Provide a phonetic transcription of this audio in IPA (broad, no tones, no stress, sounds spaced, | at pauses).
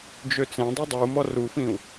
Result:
d͡ʒ ø t͡s ẽ dˤ u dˤ u m ɔ r u f ĩ u̯